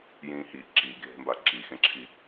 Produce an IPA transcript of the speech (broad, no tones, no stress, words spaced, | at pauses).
jĩːhi ǁiɡʱe̤mba ǁixẽǁʰi